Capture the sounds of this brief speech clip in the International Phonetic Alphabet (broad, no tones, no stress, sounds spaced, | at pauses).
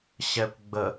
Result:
ɕ ɛ kʷ ɡ͡b ə